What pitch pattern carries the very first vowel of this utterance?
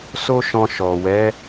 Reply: high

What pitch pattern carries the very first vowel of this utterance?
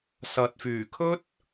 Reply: low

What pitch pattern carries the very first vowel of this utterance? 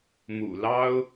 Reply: low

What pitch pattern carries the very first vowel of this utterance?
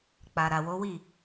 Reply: low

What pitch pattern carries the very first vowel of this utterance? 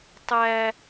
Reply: high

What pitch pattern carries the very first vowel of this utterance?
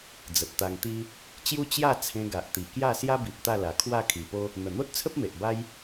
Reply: low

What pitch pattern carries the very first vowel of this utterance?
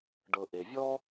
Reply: low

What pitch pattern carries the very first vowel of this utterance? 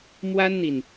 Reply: high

